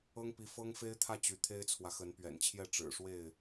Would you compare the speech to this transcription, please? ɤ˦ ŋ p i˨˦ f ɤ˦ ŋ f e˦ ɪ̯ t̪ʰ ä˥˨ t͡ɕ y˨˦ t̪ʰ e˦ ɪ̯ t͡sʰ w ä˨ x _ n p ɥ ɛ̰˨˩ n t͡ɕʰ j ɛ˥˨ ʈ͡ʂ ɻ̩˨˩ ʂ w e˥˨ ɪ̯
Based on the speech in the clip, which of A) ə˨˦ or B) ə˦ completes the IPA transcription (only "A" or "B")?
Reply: A